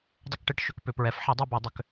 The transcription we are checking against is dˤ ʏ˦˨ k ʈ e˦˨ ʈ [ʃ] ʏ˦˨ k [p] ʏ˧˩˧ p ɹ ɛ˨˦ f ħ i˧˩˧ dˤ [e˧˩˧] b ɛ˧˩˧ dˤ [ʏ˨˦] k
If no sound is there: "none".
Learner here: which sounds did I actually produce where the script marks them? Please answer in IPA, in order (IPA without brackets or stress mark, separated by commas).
ʃ, p, e˦˨, ʏ˨˦